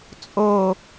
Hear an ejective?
yes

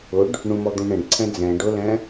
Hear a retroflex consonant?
yes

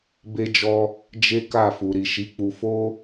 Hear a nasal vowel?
no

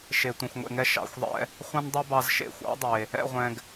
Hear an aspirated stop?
no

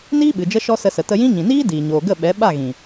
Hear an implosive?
yes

